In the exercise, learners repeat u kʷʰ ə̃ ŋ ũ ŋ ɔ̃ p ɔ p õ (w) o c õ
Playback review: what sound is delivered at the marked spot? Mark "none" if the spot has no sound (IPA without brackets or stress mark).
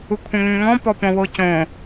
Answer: w